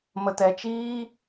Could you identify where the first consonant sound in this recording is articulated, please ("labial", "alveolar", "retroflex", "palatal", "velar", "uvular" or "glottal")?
labial